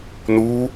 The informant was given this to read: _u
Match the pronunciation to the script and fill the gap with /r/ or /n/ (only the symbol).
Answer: n